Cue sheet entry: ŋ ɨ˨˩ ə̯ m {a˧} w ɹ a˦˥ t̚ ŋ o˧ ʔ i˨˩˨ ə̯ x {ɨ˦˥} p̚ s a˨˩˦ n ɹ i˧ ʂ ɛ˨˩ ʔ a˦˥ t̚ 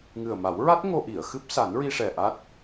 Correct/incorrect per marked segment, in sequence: incorrect, correct

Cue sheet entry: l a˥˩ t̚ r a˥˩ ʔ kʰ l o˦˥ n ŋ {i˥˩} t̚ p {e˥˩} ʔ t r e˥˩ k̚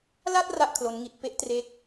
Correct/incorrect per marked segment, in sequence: incorrect, incorrect

